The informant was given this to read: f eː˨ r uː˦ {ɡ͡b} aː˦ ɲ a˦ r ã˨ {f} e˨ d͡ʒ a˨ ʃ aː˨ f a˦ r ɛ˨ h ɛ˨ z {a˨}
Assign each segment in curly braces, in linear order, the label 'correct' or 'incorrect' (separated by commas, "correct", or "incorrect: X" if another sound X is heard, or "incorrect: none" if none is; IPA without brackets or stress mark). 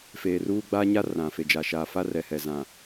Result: correct, correct, incorrect: ã˨